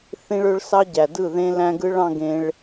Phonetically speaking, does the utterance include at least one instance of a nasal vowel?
yes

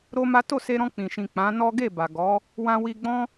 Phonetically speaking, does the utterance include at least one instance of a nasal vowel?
yes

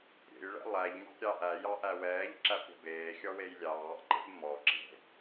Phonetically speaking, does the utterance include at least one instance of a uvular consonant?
no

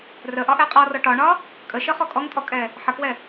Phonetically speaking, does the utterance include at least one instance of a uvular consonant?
yes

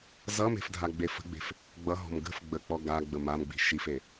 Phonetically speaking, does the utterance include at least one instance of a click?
no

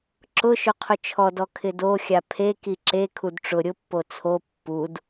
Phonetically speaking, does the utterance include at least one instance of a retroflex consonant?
yes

